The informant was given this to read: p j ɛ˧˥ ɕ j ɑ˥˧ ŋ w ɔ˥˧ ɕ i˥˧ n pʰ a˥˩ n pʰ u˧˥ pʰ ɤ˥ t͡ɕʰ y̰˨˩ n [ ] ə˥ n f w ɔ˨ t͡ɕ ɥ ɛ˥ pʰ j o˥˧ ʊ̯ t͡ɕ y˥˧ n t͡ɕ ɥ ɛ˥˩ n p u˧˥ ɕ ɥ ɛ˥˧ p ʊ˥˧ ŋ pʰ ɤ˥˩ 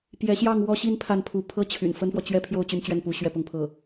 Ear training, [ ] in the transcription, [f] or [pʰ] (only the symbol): f